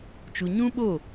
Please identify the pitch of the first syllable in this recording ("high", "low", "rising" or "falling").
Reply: low